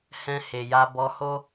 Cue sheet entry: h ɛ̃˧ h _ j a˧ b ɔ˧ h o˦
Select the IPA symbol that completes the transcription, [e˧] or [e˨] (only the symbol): e˨